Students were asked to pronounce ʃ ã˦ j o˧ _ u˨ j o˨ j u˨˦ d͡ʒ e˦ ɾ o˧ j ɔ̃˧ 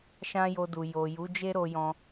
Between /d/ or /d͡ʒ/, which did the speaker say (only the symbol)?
d